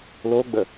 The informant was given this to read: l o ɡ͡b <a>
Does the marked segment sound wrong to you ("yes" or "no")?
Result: yes